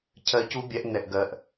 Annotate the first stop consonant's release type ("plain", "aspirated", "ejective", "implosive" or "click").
aspirated